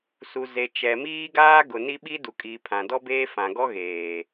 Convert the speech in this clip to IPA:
su˨ ze˨t͡ʃɛ˨ miː˦ɡaː˦ ɡʊ˨ni˦ɓi˦ du˨kʼiː˨pʰã˨ dɔ˦beː˦fã˨ɡɔ˦ ɣeː˨

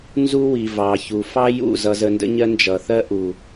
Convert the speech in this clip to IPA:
nzu˦wi˨ vɑ˨çu˨fɑ˦ jṵ˦˨ zʌ˧zə˧ndə̰˦ɲɜ˦ nd͡ʒʌ˨θɜ˦ʔu˨

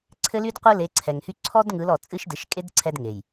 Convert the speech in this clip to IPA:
ǀʰɘ˦ly˦d qʷɯ˦le˨˦ǀʰɛ˨ŋhy˦ ǀʰɔ˦d ŋɯ˨˦lɔ˨ t͡sʼɨ˦ʃdɯ˨˦ʃ kʼe˦d ǀʰɛ˦dŋe˨j

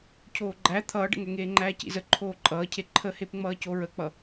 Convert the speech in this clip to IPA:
cʰoːɡ͡ǃæ t̪ʰʌːɖə̰ŋɛ ŋeːŋ͡ǃæːcḭz ə ǃʰoːǃʼʌːcʰe ǃʰəhep ŋ͡mʌːcoɹək͡pʌ

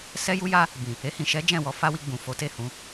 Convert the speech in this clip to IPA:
sɛ˦ju˦ja˦ | bĩ˨ | e˧hĩ˨ʃɛ˨˦ d͡ʒɛ̃˦˨wɔ˨˦fa˦wi˧ ɡ͡bũ˨fo˨˦te˦˨hũ˧

